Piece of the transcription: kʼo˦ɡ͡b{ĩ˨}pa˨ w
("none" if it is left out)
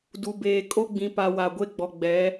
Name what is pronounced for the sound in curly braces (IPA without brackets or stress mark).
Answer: ĩ˨